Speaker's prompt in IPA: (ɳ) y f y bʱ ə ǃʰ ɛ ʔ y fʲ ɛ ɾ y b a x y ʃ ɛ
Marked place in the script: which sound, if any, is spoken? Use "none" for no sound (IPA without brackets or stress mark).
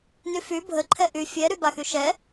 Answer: n